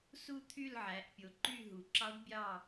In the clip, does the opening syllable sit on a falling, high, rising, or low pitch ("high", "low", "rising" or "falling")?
falling